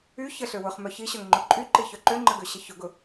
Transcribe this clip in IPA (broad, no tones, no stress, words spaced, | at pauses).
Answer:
y çəɬø wʊχmœ çiɕœŋŋ͡ǃʊ ǃʼyǃiçœ ǃøŋ͡ǃəɡøɕə çʊɡʊ